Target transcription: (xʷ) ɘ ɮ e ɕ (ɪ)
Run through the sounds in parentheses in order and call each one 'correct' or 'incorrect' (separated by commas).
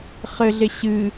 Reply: incorrect, incorrect